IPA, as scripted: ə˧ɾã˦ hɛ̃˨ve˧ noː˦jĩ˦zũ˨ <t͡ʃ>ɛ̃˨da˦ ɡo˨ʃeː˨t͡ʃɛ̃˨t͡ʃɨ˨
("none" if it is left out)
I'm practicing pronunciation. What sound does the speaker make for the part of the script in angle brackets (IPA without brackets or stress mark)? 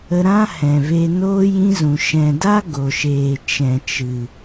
ʃ